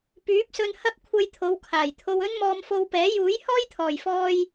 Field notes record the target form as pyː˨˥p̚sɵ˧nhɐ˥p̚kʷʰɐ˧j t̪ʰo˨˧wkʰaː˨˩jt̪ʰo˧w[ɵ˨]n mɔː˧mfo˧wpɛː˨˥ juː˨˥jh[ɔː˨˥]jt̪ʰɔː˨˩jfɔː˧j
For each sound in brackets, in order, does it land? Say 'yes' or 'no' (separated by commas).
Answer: no, no